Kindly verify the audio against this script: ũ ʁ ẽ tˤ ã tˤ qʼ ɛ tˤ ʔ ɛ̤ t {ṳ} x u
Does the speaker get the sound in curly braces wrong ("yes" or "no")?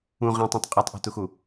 yes